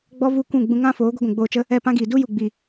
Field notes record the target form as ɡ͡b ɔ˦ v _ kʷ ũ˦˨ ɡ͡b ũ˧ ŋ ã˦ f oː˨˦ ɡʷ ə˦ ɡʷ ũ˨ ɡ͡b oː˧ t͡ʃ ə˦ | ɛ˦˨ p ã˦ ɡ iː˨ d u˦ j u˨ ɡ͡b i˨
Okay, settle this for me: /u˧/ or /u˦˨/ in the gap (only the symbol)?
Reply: u˦˨